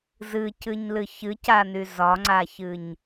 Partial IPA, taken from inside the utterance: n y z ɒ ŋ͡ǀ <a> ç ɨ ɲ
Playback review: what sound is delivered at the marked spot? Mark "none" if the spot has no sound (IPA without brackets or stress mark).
a